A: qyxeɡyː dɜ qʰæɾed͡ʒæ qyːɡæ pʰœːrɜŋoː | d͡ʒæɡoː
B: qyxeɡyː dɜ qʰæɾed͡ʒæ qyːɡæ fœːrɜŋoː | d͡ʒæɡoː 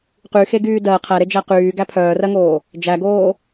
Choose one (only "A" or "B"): A